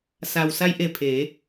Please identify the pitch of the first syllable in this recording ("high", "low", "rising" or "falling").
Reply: low